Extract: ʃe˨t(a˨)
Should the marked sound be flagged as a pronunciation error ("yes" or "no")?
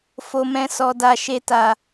no